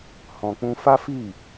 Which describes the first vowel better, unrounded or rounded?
rounded